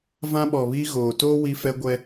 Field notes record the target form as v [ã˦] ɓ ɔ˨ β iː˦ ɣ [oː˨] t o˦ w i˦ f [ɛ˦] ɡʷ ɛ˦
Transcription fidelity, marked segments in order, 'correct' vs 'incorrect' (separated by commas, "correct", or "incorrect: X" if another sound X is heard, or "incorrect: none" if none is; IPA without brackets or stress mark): correct, correct, correct